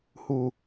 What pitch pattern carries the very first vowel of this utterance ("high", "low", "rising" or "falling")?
low